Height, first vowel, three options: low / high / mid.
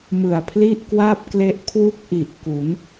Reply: high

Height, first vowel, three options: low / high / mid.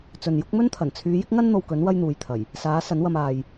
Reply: mid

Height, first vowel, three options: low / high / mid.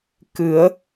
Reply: high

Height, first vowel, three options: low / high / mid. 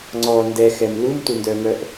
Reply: mid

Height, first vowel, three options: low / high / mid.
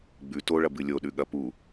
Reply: high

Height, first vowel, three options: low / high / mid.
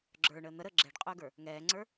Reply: mid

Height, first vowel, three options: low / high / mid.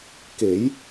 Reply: mid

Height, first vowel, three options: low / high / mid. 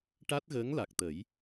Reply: low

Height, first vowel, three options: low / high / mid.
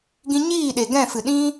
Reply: high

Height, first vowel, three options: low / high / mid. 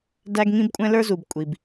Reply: low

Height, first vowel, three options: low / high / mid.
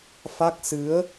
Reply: low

